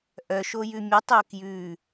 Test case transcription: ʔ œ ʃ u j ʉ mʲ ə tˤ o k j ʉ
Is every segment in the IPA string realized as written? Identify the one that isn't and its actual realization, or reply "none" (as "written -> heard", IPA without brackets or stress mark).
u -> o